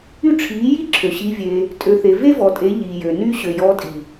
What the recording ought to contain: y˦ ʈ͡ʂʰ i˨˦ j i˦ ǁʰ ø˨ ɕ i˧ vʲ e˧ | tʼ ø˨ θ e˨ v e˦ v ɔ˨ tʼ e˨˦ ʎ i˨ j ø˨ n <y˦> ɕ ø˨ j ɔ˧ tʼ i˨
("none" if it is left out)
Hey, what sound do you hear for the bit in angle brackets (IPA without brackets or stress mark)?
y˦